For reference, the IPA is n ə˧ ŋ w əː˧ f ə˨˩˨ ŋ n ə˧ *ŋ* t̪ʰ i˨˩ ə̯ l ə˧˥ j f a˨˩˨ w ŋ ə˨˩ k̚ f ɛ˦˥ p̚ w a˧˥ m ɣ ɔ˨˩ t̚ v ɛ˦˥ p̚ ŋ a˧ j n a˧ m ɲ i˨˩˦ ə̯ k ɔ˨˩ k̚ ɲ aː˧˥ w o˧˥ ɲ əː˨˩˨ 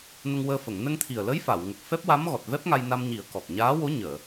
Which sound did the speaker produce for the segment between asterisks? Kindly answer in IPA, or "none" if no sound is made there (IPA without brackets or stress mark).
ŋ